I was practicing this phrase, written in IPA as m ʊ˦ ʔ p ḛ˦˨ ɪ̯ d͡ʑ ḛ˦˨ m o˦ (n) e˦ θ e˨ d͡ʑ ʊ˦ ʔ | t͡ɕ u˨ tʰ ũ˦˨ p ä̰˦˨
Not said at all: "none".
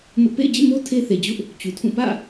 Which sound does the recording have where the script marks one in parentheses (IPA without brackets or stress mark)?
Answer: tʰ